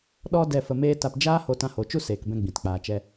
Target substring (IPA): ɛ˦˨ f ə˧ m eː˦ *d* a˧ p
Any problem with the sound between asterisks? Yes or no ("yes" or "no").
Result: yes